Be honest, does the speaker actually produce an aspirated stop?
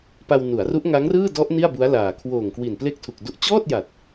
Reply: yes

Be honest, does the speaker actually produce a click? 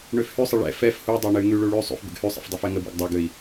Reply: no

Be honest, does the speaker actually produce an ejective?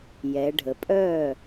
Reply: yes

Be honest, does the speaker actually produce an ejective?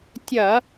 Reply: no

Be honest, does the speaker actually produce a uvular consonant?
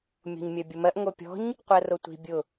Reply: yes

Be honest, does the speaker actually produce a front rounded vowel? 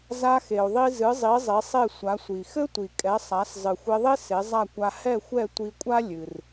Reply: no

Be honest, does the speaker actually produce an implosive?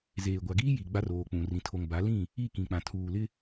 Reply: no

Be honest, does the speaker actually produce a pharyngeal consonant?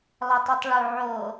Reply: yes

